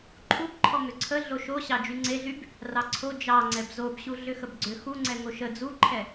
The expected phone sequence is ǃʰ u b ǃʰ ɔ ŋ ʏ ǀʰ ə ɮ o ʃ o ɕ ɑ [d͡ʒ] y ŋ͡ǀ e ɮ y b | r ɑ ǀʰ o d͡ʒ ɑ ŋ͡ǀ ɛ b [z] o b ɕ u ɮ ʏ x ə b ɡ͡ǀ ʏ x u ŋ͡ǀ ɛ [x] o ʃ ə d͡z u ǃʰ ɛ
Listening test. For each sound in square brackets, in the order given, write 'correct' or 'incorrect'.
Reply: correct, correct, incorrect: ŋ

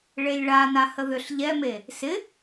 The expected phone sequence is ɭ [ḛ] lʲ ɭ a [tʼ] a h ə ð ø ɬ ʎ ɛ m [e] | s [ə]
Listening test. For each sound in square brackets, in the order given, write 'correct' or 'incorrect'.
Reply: incorrect: e, incorrect: n, correct, incorrect: ɪ

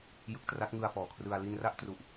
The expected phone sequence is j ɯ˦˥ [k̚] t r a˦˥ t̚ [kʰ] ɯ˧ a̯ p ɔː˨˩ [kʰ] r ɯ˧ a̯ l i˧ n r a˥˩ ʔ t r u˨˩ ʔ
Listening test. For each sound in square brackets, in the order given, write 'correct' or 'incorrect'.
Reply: correct, incorrect: ŋ, correct

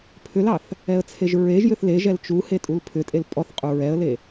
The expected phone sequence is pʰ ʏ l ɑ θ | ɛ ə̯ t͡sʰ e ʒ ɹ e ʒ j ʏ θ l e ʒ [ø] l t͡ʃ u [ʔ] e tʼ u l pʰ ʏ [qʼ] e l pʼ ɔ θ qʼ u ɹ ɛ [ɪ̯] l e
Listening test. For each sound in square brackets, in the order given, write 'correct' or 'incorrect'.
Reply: incorrect: ɛ, incorrect: h, incorrect: tʼ, incorrect: ə̯

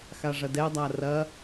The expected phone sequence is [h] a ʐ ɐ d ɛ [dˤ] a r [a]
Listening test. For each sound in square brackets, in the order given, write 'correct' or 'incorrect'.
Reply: incorrect: x, correct, incorrect: ɐ

